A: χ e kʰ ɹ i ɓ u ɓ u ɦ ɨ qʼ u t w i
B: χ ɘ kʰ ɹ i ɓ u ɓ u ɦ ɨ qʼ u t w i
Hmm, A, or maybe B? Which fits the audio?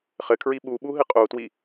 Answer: B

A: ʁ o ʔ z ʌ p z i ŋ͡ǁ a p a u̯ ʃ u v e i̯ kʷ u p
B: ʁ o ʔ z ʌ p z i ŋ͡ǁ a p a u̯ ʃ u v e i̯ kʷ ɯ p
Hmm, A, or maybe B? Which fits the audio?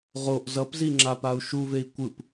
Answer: B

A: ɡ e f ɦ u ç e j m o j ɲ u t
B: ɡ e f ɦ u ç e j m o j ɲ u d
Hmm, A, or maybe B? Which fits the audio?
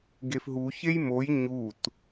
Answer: A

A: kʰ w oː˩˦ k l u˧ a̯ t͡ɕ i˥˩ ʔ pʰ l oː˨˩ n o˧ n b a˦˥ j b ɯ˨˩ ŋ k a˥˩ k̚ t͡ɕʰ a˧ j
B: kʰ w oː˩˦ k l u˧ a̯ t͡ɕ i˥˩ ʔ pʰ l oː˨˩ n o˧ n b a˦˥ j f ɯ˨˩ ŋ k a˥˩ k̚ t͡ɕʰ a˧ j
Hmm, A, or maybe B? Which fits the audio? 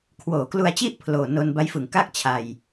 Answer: B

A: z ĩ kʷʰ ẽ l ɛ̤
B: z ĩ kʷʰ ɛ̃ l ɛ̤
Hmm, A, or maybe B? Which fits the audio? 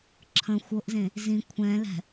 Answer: B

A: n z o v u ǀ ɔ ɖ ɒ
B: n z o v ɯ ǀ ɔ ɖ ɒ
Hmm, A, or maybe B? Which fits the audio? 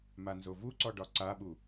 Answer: A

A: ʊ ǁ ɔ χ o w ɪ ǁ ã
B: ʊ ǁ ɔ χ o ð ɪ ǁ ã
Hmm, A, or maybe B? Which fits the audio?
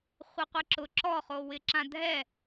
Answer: A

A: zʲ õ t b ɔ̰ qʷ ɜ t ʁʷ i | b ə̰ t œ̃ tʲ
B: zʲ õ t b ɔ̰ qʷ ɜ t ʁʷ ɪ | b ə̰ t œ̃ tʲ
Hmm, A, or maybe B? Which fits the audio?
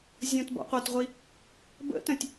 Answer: A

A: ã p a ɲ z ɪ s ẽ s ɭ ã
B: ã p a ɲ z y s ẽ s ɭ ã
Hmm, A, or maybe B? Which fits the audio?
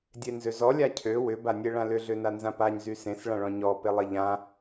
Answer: B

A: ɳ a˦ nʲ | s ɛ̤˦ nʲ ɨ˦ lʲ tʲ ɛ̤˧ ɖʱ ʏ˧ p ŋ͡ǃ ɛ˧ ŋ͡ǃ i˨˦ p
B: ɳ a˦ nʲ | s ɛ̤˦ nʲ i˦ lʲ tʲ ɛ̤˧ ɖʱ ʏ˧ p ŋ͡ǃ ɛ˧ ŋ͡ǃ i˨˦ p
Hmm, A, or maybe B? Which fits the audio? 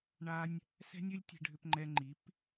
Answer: A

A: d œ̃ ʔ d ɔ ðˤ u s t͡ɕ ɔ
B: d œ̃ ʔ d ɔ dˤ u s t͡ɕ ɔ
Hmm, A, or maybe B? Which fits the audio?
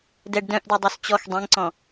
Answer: B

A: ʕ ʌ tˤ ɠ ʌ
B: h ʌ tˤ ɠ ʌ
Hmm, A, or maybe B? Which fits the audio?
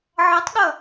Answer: A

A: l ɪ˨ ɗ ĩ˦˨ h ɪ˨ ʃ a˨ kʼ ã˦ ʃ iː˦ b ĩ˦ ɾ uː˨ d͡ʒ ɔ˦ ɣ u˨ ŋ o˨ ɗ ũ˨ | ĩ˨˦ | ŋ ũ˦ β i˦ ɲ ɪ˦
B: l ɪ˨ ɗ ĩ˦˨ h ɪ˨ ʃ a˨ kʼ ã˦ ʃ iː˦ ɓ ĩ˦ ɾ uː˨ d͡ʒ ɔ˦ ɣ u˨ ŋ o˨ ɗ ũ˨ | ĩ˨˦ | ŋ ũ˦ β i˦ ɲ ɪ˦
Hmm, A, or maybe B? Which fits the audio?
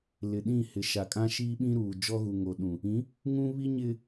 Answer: B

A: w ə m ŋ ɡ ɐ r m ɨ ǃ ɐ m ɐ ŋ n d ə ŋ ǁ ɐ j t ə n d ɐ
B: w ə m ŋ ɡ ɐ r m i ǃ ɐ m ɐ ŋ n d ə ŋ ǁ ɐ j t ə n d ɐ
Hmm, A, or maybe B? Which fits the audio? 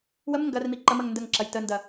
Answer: B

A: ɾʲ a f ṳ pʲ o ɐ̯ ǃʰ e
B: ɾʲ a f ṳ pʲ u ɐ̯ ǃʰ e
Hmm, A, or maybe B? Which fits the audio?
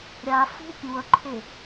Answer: B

